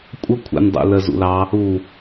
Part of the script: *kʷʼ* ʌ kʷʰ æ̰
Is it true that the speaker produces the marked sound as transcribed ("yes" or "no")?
yes